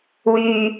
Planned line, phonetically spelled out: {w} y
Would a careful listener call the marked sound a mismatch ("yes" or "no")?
no